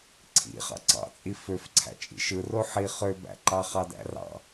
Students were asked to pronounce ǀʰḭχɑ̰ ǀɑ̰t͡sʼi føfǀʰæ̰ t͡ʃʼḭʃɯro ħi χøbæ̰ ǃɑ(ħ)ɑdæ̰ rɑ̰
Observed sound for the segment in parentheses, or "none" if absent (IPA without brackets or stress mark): χ